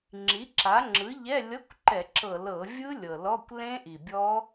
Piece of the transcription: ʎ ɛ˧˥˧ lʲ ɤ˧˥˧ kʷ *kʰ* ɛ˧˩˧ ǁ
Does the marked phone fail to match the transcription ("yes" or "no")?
yes